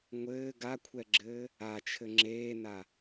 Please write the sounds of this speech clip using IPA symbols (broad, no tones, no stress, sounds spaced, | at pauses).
ŋʷ ɘː ɡ a kʷʰ ɛ ɡ͡ǁ ɘː | a t͡ʃʰ ɘ ŋ͡ǁ eː n a